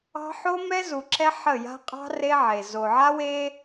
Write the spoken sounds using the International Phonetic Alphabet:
ɑ̤˦ ħo˦mɛ˦zu˨ ǁɛ˦ħə˦˨ja̤˦ qʼɑ̤˦ re˦ʕe˨ zo˨ʕa˦we˦

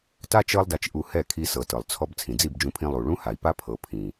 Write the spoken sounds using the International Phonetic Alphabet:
ta˦ t͡ʃɤ˧lˠda˨t͡ʃʔu˨ hɛ˦˨kʰi˧sɤ˨ tɤ˨lˠt͡sʰɔ˦b t͡sʰĩ˨d͡zi˦˨bd͡ʒũ˧pʰĩ˧ lˠu˨ ɭũ˦ha˨i̯pa˦ pʰɤ˨pʰĩ˨

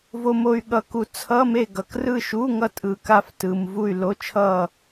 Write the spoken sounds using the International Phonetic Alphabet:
vo˨mo˨y̯ɠʌ˨ku˨ t͡sʰʌ˧˥˧me˦˨ ɡʌ˨krɯ˦˨ʃu˧˥˧ŋʌ˦˨ tʼɯ˨ka˦˨ftɯ˨m vu˦˨y̯lo˧˥˧t͡ʃʰʌ˦˨

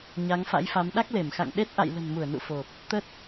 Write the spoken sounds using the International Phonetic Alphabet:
ɲa˨˦ŋfa̰˧˥jfa˨˦m ɗa˦˥k̚le˧˩mxa̰˧˨ŋɗe˦˥t̚ ʔa̰˧˨jlə̤˨˩nmu˧˩ə̯nṵ˧˨ fo˨˩p̚ | t̪ə˦˥t̚

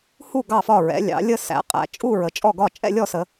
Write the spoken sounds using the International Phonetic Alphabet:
hu˥˨ ɡɑ˥˨fɒ˥˨ ɹɛ̰˩˧lʲɑ̰˩˧lʲə˥˨sæ̰˩˧ qʼæ̰˩˧t͡ʃʼu˥˨ɹə˩˧ t͡ʃʼɔ˥˨ɡɒ˥˨ t͡ʃʼɛ̰˥˨lʲɔ˥˨sə˩˧

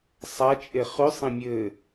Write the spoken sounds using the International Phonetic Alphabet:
sˤat͡ʃʼe χʉsˤĩ mʲɘ

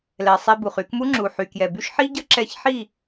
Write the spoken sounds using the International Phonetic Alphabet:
lɛ˨sˤe˧bu˨χ y˧kmu˦ŋ͡ǁu˨ ħy˨kjɛ˨by˦ʃ ħi˦ ɟə˦ǁɛ˧çħi˦˨

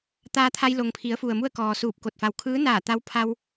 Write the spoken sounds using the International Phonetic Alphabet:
t̪aː˧t̪ʰa˧jlo˩ŋpʰi˩˧ə̯ fu˩ə̯mu˥˨ə̯kɔː˩ suː˧˩p̚ko˧˩t̚ fa˩wkʰɯː˧˥naː˧˩ t̪a˧wpʰa˧w

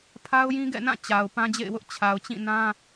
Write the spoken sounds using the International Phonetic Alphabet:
pʰa˦ʊ̯jĩ˦ɡɛ̰˦˨nã˦˨ t͡ɕa˨ʊ̯ pã˦d͡ʑḛ˦˨ɪ̯wʊ˦ʔ t͡ɕʰa˨ʊ̯t͡ɕĩ˦˨nã˦

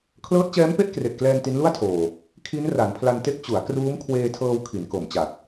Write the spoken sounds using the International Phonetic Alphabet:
kʰlɤː˦˥t̚t͡ɕɛː˦˥mpe˥˩ʔ kre˨˩ʔklɛː˧n ti˦˥nlu˥˩a̯tʰoː˨˩ | kʰi˦˥n ra˩˦npʰla˧nte˦˥k̚ t͡ɕu˩˦a̯ kruː˦˥m kʰweː˧tʰɤː˧w kʰi˩˦nko˨˩mt͡ɕa˨˩t̚

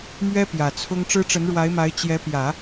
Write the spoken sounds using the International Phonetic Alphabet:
mɥɛ˥ pjä˨˩t͡sʰʊ˥ŋ ʈ͡ʂɻ̩˥ʈ͡ʂə˧˥nɻwa˧˥ɪ̯ma˧˥ɪ̯ t͡ɕjɛ˧˥pjä˨˩˦

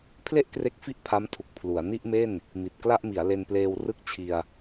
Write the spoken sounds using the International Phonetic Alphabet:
pʰle˥˩ʔkre˦˥k̚fi˦˥ʔ pʰa˦˥mtʰu˨˩k̚ pʰlu˩˦a̯ ni˥˩ʔme˥˩n | mi˨˩t̚kla˥˩ʔmi˩˦a̯ le˧npleː˧w rɯ˥˩k̚t͡ɕʰi˧a̯

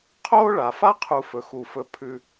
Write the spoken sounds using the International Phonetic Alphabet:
qʰoː˥ɭa˩fa˥qʰu˨ fɵ˨xu˨ fɵ˨ pʰʉ˨

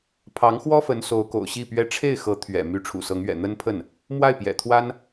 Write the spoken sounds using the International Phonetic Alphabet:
pʰɑ˧˥ŋxwɔ˥fə˧˥n so˧˥ʊ̯ko̰˨˩ʊ̯ ɕi˥˩pɥɛ˥ ʈ͡ʂʰe˥˩ɪ̯xɤ˧˥ t̪ʰɥɛ̰˨˩ my˧˥ʈ͡ʂʰṵ˨˩sɤ˧˥ŋɥɛ̰˨˩ n̪ə˥npʰə˥˩n | mwa˥˩ɪ̯pjɛ̰˨˩t̪ʰwa˥n

